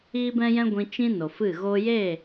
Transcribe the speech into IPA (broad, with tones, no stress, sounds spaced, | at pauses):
iː˦ b ɛ̃˦ j ɛ̃˦ ɡʷ ĩ˧ t͡ʃ ĩ˦ n o˨ f ɨ˦˨ ɣ o˦ j e˦˨